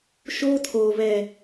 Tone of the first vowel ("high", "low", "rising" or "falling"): high